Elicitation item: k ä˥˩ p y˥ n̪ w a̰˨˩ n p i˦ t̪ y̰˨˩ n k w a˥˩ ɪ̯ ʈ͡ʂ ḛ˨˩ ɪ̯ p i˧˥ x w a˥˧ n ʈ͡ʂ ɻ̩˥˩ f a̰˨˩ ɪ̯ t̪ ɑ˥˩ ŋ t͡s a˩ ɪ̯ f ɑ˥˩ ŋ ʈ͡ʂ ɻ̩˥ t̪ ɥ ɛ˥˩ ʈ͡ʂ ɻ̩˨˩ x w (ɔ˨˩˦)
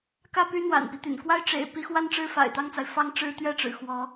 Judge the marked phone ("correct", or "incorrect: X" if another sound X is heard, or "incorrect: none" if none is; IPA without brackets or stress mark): incorrect: ɔ˧˥